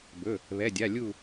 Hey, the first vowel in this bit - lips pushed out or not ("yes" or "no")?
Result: yes